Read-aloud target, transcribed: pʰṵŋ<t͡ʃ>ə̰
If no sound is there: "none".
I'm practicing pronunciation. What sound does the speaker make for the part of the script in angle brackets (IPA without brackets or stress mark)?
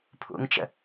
t͡ʃ